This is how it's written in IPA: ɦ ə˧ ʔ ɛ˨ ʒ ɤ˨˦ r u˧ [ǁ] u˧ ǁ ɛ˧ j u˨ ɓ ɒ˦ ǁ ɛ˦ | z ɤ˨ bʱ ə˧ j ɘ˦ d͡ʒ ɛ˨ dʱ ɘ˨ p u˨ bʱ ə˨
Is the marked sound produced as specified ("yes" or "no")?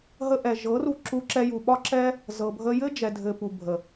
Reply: yes